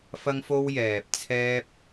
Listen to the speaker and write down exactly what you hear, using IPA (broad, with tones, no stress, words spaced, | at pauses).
fɐ˥ŋfo˥w jɛː˨p̚ t͡sʰɛː˥p̚